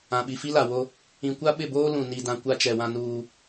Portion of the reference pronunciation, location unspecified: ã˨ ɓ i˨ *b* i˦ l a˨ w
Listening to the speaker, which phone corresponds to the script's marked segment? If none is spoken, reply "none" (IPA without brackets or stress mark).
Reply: f